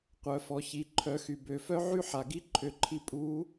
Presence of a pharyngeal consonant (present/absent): present